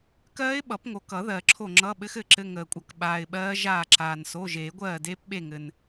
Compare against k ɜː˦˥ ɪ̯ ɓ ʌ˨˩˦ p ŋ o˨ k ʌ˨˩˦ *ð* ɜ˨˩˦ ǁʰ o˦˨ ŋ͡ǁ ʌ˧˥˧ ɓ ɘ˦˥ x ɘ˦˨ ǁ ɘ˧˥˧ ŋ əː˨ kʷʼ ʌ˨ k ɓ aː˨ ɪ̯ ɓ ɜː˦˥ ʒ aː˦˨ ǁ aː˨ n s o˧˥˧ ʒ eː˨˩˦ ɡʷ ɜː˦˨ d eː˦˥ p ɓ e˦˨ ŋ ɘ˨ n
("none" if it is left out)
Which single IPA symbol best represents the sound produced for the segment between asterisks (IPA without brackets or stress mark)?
ð